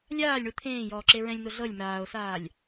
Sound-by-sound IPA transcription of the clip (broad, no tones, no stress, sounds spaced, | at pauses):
lʲ aː lʲ ɳ u t̪ʰ ẽː j ɔː ǁ e ɹ ɛ̃ lʲ n̪ o ɮ ɤ lʲ m aː o̯ s aː lʲ